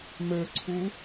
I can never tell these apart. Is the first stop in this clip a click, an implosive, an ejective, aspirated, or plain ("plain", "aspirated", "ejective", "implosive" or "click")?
click